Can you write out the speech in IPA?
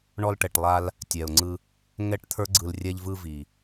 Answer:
ɳ ɔ˧ l ʈ ɛ˨ ʈ lˠ a˧ l | tʲ ɛ˨ ʊ̯ ŋ͡ǀ ɯ˧ | ŋ ɛ˦ ʈ t̪ʰ ə˞˦ ɡ͡ǀ ɯ˧ l rʲ ɛ˧ ʎ v ɯ˧ v i˨

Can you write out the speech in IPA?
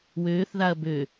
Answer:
w øː θ ð a ɐ̯ b ø

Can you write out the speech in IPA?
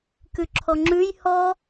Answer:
k ʉ ǁʰ ɔ ŋ͡ǁ ʉ j h ɔ

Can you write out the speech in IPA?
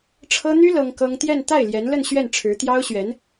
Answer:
ʈ͡ʂʰ ɤ˥ n̪ y˥ l ɤ˥ ŋ k ɤ˥ ŋ t̪ j ɛ˥˧ n t̪ a˥˩ ɪ̯ l j ɛ˧˥ n l ə˥˧ n ɕ ɥ ɛ˥˩ n ʈ͡ʂʰ ɻ̩˧˥ t̪ j ɑ˥ ʊ̯ ɕ ɥ ɛ˧˥ n

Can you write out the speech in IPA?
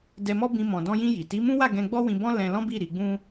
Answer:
d ɛ˧ m ɔ˦ b ĩ˧ m ɔ̃˨ d ɔ̃˧ j ĩ˧ j i˨ t i˨˦ m ũ˦ w a˦˨ ɡ ɛ̃˧ ɡ͡b ɔ˦ w ĩ˧ b ɔ̃˦ l ɛ̃˦ l ɔ̃˦ b i˦˨ ɾ i˧ ɡ͡b ũ˦

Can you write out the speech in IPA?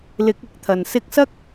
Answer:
l ɪ˨˥ k̚ ɪ˨˥ k̚ t̪ʰ ɐ˨˩ n s ɪ˧ k̚ s ɐ˥ k̚

